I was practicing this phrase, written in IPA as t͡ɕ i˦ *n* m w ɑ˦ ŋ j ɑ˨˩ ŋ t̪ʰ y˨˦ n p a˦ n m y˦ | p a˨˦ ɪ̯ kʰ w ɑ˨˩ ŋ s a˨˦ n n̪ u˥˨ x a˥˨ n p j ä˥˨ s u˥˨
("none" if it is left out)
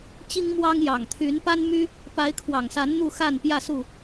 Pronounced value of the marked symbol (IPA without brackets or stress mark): ŋ